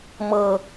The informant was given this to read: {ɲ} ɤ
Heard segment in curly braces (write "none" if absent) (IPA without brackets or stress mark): m